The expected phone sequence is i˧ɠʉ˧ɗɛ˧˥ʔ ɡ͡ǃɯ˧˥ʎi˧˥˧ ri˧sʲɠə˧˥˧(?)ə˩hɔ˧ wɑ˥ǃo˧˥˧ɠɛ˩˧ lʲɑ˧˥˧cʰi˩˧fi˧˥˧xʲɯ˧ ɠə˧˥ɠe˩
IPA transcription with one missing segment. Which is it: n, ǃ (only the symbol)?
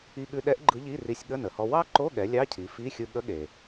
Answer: n